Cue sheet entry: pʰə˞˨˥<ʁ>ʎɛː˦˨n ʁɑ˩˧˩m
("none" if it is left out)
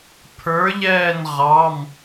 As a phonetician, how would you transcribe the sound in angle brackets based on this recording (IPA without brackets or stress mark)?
none